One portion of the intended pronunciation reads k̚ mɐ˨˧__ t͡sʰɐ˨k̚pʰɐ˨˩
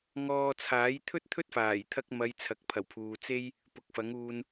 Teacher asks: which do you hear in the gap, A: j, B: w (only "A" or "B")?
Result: A